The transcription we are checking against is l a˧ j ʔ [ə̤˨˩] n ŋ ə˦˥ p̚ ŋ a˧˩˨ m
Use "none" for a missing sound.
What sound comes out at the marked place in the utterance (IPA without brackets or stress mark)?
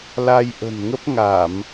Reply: ə̤˨˩